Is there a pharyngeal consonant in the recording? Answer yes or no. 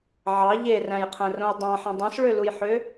yes